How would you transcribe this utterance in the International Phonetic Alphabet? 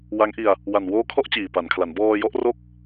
wa˦˥ŋʔi˧a̯ | wa˨˩nwoː˦˥kʰɔ˦˥ʔ t͡ɕiː˨˩pa˩˦nkʰla˩˦n bɔː˧jɔ˥˩ʔro˥˩k̚

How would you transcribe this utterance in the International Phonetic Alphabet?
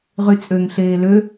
ʁyt͡sʼøŋ ɬeːlø

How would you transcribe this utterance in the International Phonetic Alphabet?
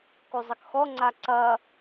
kuzˤɐkxɔ ŋ͡ǀaǀɐ

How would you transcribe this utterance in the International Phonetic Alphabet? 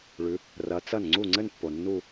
ɭʉ˨˦ | rɐ˨˦t͡sɐ˥˩n ŋ͡ǀu˥˩ŋ͡ǀɘ˥˧npːo˨ nːu˥˧

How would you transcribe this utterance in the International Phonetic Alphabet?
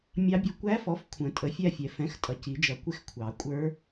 mʲɑ˦˥bʲʌ˦˥ kʷæ˦˥fɔ˩˥f kʷʰə̃˨˩˦ tʼə˩˥fʲæ˥˧fʲɛ˨˩˦ fɛ̃˩˥xtʼʌ˩˥ci˨˩˦d͡ʒʌ˨˩˦ kʷɪ˥˧xkʷʰɑ˨˩˦ kʷʼə˞˦˥

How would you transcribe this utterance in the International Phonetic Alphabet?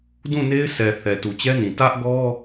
dũ˦˨ ne˦ɪ̯sʰɛ˨ θɛ˨tu˨ t͡ɕɛ˦nĩ˨ tä˦ʔɡɔ˦

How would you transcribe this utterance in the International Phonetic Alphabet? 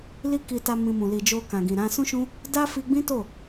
li˦ki˧ta˧ mĩ˧mũ˨ li˨d͡ʒo˧ kã˨ɡĩ˨ɾã˧ sũ˦ʃũ˦ | da˦fi˧ ɡ͡bĩ˦to˦˨

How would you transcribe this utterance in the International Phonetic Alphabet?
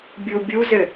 bʲubʲuzɘ

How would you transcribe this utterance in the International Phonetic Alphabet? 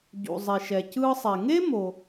ɟṵ˩ zˤi˩ʃɛ˩cɯː˧sˤe˩ ŋe˥mo˩

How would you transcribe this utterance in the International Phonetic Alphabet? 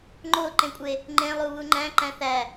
ŋ͡ǃoǃẽkʷʼe | ŋ͡ǃẽlˠu βuŋ͡ǃæ̃ ǃæ̃θæ

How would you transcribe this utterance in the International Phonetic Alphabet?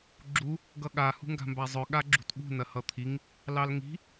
ɡ͡ǁu | ɡʌɠa hṳŋɡa̤mbazˤœ ɠaɡ͡ǁṳtɠṳ nɐhʌt̪ʰiŋ | lɑlŋi̤

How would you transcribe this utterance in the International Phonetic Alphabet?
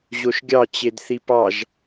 ʑoʃɡʲɑ t͡ɕedθipɑʒ

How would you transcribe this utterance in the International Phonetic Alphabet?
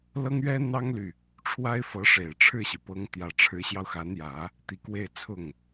lɤ˥ŋɥɛ˥n̪ɑ˥ŋly˨ | ʈ͡ʂʰwa˥ɪ̯fɤ˧˥ʂe˨˩ɪ̯ ʈ͡ʂʰɻ̩˥˩ɕi˩pɤ˧˥ŋt̪jä˨˩ ʈ͡ʂʰɻ̩˧˥ɕjɑ˧ʊ̯xa˧˥njä˨˩˦ | t̪i˧˥kwe˥˧ɪ̯t͡sʰʊ˥˩ŋ

